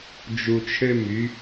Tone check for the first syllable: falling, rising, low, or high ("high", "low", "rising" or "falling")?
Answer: low